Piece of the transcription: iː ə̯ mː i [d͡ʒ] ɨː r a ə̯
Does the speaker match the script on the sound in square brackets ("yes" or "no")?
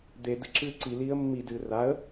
no